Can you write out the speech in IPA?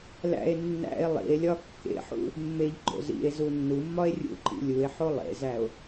læ̰e̯ nːæ̰e̯ lˠḭe̯lʲɒ kːḛħṵ | mːeʎɡ͡ǃo̰ zḭe̯ zunːumːɒe̯ rʲṵǃḭ lʲue̯ħo lˠḛzæo̯

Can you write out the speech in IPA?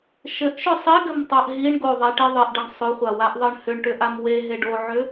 ʃɘʔʃʏ sˤiɡɘmtˤaʔ ɦiɳɡoðˤeʈi ðˤɘʔɖɘɳ sˤʏχʷawaʔðˤɘɳ hʏɳʈʏʔam weɦe ɖoʕʏ

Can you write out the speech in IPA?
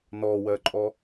nɔwɜǃʼɔ

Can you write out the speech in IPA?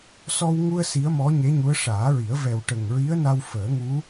sɔ˧wŋu˧ə̯ si˧˥ə̯mɔ˧˥ɲe˧˥ɲu˧˥ə̯ ʂaː˨˩˦ɹi˨˩˦ə̯ vɛ˨˩wʈə˨˩ŋɹi˧˥ə̯na˧w fəː˨˩˦ŋu˧˥

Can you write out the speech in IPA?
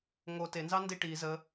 ŋo tenzɑ ndiʈi zə

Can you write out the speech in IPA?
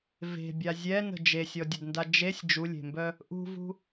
ve̤bʲa zʲɛnə̤ d͡ʒesʲɔdʲədnda d͡ʒesʲ d͡ʒulʲe̤mbœ | ʔṳvṳ

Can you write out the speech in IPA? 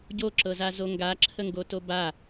ɟoǁɤzazo ŋɡaǁʰəŋɡoto ba

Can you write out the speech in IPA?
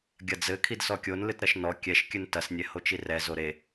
ɡʲɐd͡zɘ kʰidsɔkʲon lɨtɾɐʃnɔ kʲɛʃ kʲɨntɐsnʲɛ hot͡ʃirɛzo ɾe

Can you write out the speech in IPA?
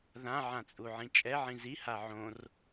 ðãʕãt͡sʼuʕĩ t͡ʃʼɛʕĩ ziha ʕõr

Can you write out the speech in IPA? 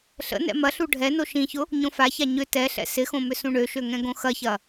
ɬə̰nɛ̰ mɐɬu ɖʱɛno ʃĩçʊ | ɲõfaça ɲʏ tɛɬɛ̰ sɪxõ mʏsũɳøʃø ŋɛ̃ɡõxɐçɐ

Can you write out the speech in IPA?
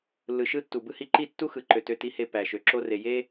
lːɯ˨ʃɯ˦tːu˨ bɯ˦hi˦ ǃi˦˨tːu˦ xɯ˨ǃø˨ tø˦ti˦he˦ pæ˨ ʃø˨ǁo˦re˨ je˦

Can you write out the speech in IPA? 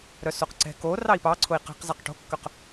ɾœsoqǀɛ̤ ko rɑi̯pɑ ǀʰʊi̯qɛ̤q zɑqʈo̤kːœq

